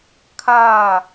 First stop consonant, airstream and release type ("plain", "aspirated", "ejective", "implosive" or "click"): aspirated